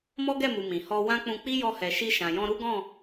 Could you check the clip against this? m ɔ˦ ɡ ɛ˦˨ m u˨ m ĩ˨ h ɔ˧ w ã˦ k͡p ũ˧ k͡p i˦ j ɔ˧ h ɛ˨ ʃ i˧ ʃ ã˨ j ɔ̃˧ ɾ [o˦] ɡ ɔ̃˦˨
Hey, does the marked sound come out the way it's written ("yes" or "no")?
no